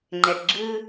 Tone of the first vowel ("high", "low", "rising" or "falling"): low